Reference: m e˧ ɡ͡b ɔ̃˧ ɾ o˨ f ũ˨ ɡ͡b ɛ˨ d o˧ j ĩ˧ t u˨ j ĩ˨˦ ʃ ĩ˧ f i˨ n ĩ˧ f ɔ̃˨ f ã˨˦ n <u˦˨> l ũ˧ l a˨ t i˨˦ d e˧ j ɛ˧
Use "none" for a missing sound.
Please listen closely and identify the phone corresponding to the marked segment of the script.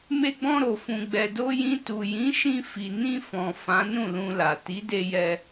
ũ˦˨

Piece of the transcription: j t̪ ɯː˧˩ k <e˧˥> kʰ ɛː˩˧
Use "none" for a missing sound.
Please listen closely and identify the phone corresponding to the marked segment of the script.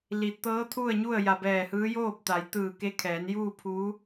e˧˥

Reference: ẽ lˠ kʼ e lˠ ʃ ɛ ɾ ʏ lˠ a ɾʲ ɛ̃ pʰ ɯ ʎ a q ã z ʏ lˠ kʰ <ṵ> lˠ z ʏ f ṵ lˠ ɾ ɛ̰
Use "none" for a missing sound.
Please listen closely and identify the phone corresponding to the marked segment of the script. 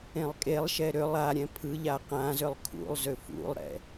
ṵ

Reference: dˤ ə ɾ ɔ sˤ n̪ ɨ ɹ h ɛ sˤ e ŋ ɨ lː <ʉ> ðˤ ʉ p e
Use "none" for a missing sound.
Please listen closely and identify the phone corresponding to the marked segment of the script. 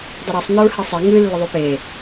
ə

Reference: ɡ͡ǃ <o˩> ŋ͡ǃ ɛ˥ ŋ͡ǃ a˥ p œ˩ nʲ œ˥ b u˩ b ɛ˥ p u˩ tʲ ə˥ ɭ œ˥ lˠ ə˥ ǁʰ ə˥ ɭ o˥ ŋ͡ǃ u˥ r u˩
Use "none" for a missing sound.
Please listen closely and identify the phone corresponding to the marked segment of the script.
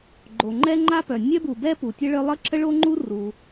o˩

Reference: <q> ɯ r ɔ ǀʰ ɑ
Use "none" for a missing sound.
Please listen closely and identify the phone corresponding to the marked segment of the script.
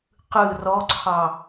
q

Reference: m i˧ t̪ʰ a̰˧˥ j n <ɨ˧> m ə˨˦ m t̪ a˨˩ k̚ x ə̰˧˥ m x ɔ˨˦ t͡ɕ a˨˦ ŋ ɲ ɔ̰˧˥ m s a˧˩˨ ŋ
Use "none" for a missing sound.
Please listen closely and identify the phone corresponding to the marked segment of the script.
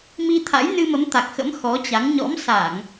ɨ˧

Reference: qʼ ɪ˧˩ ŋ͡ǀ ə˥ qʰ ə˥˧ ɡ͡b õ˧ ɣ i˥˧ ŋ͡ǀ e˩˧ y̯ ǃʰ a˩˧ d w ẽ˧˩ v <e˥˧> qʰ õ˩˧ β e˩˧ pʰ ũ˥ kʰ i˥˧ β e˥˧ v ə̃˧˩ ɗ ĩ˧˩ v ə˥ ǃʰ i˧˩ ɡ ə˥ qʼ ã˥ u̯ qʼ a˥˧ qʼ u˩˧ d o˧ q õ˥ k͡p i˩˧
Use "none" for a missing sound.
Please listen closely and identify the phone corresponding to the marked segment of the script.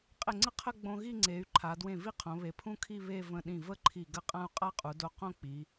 i˥˧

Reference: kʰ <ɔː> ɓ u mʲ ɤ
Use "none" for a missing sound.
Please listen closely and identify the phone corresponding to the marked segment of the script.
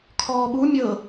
ɔː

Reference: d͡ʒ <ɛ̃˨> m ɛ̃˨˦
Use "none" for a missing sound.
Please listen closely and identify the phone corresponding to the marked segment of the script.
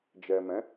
ɛ˨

